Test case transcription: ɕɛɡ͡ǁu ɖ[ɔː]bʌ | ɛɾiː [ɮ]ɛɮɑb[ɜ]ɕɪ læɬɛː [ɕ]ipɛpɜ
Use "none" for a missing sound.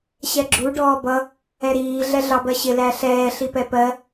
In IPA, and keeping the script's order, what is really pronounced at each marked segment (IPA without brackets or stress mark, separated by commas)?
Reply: ɔː, ɮ, ɜ, ɬ